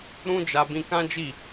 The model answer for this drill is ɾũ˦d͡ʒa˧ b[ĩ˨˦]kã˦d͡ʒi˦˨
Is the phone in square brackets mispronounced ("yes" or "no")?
yes